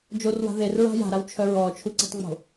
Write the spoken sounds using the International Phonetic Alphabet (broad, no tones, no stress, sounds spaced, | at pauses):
d͡ʒ o r w a̤ ð e r ɹ a̤ j a̤ ɾ a w t͡ʃʰ œ ɹ ɔː t͡ʃʰ u ǀ i̤ tˤ ŋ͡m o̤